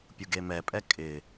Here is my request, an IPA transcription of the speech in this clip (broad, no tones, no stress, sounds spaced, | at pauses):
pʲ u ɡ e m ɛ pʼ ɛ kʼ ɪ